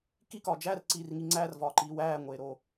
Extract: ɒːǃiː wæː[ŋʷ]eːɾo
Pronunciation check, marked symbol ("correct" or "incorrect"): correct